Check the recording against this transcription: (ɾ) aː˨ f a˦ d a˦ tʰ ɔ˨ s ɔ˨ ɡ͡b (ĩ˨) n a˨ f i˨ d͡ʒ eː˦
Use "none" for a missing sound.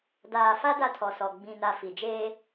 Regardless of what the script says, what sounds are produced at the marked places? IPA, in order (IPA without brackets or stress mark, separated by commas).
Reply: d, ĩ˨